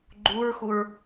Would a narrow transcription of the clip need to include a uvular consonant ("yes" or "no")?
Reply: no